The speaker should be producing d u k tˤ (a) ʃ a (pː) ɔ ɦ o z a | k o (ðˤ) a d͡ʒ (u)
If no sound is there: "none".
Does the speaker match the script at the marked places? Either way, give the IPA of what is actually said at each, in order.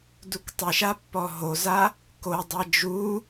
ə, pː, dˤ, u

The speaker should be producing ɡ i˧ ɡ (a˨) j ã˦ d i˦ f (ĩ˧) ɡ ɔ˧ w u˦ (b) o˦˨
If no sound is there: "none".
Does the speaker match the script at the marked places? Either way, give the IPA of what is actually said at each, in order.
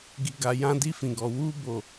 a˧, ĩ˧, b

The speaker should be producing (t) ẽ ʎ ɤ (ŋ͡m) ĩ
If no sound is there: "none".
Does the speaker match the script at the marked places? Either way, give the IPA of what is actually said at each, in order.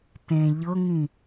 t, ŋ

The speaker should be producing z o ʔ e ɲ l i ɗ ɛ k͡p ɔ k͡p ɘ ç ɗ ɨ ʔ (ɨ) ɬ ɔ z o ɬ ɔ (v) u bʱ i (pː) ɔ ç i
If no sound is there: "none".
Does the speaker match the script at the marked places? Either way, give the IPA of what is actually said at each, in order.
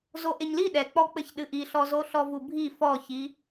i, v, f

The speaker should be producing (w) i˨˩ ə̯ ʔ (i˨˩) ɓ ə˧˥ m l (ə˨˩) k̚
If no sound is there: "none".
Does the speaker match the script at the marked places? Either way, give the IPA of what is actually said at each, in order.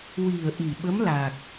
w, i˨˩, a˨˩

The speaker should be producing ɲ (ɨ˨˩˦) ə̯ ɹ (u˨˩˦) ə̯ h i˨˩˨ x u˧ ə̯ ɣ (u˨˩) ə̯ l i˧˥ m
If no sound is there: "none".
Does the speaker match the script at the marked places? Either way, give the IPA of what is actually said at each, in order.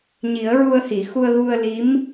i˨˩˦, u˧, u˧

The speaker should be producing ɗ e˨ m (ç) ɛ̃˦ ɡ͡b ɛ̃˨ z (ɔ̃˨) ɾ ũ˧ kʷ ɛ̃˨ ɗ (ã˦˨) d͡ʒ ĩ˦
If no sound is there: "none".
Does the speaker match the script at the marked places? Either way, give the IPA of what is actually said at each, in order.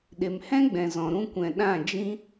h, ɔ̃˨, ã˦˨

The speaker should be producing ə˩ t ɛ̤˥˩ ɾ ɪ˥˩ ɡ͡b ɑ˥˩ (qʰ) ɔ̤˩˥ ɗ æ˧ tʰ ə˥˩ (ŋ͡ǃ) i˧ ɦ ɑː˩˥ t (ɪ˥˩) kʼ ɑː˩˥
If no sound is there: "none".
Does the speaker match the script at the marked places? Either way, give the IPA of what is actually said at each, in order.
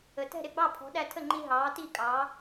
pʰ, ŋ͡ǃ, i˥˩

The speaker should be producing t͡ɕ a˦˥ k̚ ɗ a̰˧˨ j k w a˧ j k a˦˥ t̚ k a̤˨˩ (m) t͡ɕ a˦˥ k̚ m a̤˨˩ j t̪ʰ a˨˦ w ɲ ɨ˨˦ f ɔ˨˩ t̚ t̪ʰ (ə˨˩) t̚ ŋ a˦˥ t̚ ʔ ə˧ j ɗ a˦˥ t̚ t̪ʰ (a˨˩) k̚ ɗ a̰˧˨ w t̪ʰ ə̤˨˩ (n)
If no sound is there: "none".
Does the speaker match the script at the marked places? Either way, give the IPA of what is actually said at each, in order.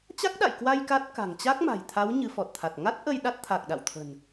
ŋ, a˨˩, a˨˩, n

